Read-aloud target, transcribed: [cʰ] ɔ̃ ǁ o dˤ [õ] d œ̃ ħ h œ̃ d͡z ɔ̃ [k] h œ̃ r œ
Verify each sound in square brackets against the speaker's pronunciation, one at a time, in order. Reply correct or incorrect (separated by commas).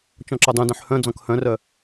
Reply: incorrect, incorrect, correct